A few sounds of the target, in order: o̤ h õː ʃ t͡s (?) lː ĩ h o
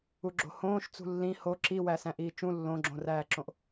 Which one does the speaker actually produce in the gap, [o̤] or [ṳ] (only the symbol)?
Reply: ṳ